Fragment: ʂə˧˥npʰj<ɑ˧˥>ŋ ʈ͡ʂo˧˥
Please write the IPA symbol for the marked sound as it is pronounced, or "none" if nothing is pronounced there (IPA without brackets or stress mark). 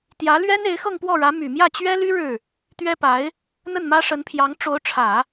ɑ˧˥